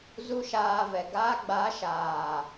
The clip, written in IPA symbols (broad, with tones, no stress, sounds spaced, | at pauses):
z u˦ ʃ aː˧ v ɛ˨ ɡ a˧ ɡ͡b a˨˦ ʃ aː˨